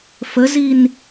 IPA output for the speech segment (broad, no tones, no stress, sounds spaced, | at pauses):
f ə z i n